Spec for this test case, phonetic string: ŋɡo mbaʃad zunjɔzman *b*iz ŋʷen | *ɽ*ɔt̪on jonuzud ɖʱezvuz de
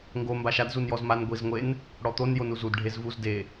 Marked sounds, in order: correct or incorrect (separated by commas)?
incorrect, correct